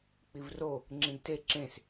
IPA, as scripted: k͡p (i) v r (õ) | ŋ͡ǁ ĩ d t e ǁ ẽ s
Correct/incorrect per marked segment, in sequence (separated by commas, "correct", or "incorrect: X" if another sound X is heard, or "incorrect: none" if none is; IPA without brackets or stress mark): correct, incorrect: o